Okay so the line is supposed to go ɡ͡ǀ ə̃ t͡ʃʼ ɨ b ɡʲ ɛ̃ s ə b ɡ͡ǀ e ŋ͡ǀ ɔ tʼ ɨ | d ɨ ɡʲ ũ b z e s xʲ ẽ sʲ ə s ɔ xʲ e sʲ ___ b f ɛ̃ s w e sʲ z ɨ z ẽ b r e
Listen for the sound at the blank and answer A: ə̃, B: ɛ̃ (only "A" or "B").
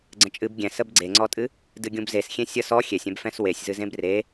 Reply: B